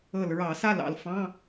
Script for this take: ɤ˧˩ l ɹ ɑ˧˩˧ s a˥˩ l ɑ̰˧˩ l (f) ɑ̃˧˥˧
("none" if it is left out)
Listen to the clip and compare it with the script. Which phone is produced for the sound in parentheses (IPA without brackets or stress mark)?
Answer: f